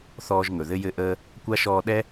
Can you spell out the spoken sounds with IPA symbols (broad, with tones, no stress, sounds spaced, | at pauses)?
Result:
θ ɔː˦ ʒ ŋ ɵ˨ ð ɘ˥ j ɘ˦ ʔ əː˦ | kʷ a˥ ʃ ɔː˦ ɗ ɛ˥